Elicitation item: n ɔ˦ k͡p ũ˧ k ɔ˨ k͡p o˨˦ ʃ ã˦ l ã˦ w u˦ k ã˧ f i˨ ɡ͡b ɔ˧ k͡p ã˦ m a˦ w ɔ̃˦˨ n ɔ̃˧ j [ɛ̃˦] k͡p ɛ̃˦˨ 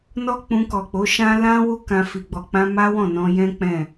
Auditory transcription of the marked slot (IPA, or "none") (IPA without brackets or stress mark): ɛ̃˦